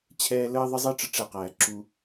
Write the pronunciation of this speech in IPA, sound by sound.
t͡ɕʰɛː˧ləː˦ ðˤə˦zˤi˦ ʈ͡ʂə˦ʈ͡ʂɛ˧qæː˨ ǁu˧

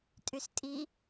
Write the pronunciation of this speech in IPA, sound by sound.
tʼystʼi

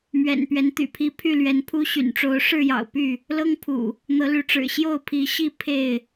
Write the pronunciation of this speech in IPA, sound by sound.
mɥɛ̰˨˩npɥɛ˨˦n t̪y̰˨˩pʰi˨˦ pʰy˥˨lɥɛ˨˦npʰu˦ ɕy̰˨˩nʈ͡ʂo˨˦ʊ̯ ʂɻ̩˥˨jɑ̰˨˩ʊ̯ py˥˨ | lɤ˦ŋpʰṵ˨˩ | n̪ɤ˨˦ly˨˦ʈ͡ʂɻ̩˨˩ ɕjo˥˨ʊ̯pʰi˨˦ ɕi˥˨ pʰe˥˨ɪ̯

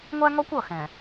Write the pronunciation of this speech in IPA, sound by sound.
ŋʷæ˦ŋɔ˦kʷ ʌ˦˨xɛ̃˨

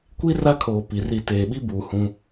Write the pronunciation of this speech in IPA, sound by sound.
kʷi˦ ra˦kʰoː˨ pi˨ri˦˨ teː˨ɓi˦buː˨ hũ˦

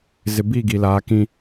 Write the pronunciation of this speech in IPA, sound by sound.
zɪ˨bi˦˨ ɡi˨laː˨˦kĩ˦

